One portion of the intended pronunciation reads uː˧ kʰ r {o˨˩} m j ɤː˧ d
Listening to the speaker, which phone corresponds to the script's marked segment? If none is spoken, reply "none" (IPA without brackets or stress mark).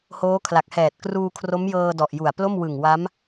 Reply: o˦˥